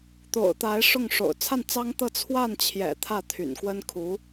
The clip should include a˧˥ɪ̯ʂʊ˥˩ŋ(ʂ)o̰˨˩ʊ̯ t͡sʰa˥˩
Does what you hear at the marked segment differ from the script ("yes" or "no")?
no